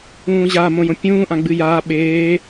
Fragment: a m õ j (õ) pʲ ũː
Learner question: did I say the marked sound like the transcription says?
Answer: yes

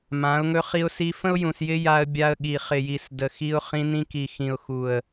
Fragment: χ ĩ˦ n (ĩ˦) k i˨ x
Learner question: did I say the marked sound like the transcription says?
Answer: yes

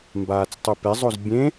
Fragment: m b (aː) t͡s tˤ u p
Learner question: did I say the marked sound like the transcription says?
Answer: yes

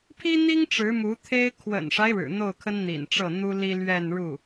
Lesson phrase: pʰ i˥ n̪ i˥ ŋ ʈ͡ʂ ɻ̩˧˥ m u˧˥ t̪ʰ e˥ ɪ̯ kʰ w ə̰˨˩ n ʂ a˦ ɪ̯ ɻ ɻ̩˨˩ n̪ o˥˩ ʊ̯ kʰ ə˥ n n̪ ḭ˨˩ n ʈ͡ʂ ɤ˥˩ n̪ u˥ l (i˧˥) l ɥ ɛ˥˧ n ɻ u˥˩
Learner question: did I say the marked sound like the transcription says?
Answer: no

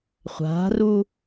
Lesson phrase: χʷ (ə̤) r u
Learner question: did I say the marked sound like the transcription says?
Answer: no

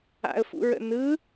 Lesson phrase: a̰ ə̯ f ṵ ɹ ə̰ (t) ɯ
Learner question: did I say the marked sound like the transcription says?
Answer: no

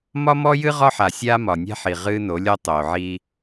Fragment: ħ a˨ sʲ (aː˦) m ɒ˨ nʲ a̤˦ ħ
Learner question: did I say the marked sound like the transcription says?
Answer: yes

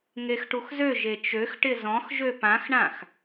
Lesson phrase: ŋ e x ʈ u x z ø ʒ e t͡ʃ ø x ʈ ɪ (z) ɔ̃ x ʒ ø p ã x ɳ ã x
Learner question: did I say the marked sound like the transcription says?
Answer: yes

